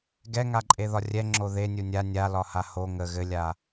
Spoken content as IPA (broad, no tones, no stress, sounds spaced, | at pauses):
ɡ ɛ ŋ a ǃʼ e ð ɒ rʲ ɛ ŋ͡ǁ o ð e nʲ u nʲ a nʲ a l ɒ h a h o ŋ ə ɣ ɘ lʲ a